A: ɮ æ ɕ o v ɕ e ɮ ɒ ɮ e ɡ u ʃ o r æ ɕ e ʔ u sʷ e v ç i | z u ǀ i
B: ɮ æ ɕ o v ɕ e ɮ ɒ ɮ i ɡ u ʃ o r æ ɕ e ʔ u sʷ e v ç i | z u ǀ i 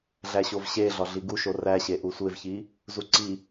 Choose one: B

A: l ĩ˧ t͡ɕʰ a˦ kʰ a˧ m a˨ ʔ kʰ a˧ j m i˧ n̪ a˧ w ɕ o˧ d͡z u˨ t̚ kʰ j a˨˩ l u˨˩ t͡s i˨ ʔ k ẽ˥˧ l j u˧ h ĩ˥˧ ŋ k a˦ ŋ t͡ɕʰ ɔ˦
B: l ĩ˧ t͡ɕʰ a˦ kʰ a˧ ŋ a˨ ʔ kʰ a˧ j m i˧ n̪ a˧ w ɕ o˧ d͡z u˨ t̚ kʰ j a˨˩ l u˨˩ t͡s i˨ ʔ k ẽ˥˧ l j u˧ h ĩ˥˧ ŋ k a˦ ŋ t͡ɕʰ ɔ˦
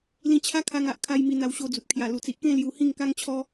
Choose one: B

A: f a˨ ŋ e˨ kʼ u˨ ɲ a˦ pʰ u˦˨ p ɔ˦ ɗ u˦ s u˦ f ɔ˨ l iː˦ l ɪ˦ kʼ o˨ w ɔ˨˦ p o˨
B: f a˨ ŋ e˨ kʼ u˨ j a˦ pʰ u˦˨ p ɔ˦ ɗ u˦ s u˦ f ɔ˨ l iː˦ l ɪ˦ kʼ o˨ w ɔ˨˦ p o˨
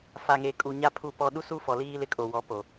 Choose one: A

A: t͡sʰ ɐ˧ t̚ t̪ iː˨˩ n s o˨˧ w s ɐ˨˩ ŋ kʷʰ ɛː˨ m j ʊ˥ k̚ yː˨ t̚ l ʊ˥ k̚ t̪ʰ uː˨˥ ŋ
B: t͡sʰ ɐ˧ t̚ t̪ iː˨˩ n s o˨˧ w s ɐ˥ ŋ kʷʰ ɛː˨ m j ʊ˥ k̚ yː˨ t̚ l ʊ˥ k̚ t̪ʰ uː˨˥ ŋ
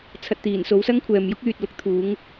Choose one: B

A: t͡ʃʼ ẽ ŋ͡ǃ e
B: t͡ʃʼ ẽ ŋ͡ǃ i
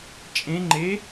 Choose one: A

